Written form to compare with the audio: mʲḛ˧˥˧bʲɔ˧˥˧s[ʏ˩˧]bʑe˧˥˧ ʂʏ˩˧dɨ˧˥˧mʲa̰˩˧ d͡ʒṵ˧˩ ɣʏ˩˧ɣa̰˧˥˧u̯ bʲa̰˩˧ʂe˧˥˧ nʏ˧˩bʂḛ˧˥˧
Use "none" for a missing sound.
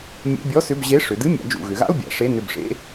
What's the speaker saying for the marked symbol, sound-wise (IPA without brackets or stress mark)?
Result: ʏ˧˥˧